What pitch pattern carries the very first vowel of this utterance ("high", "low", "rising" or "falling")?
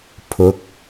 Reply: rising